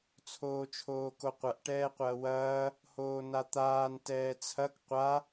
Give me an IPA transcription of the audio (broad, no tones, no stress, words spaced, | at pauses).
t͡sʰoːt͡ʃʰoːkoqʷɐʔ ʈɛːqʷɐːwɐː | hoːnat̪aːn tɛːt͡sʰɐk qʷa